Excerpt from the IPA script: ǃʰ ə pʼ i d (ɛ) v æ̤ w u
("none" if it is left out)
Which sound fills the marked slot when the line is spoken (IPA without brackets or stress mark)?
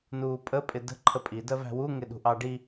ɜ